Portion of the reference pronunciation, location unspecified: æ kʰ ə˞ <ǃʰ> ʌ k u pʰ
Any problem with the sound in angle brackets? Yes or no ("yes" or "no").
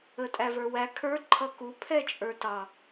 no